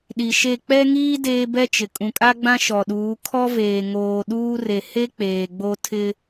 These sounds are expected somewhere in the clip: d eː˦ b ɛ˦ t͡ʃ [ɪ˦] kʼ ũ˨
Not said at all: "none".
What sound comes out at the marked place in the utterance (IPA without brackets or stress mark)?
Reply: ɪ˨